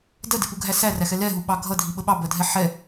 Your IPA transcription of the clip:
d ɜ d ɪ p u ɡʱ æ s æ r æ x ɛ l ɛ ɦ u ɓ ɑ ɡʱ ʌ dʱ i ɓ ə ɓ ɑ b ɜ dʱ ɛ ħ ɛ

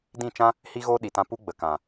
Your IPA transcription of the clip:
d ĩ˦˨ t͡ʃ ã˦ | h i˦ ɣ oː˦ ɗ i˨ t ã˧ p u˦ ɡ͡b ə˨ k ã˨

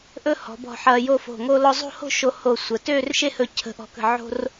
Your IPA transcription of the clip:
ʔ ɵ˥ h ɔ̤˩˧ b ɔ̤˧˩ ħ ɐː˧ j o˥˧ f o̤˧˩ ŋ o˥ l ɔ˧ zˤ o̤˥˧ h o̤˥˧ ʃ o˧ h o˧˩ sʷ ə˩˧ t øː˥˧ r ʃ e˥ h ɵ˧˩ cʰ ə̤˧˩ ʔ ɔ̤˧˩ k ə̤˧˩ ʕ o̤˥ r

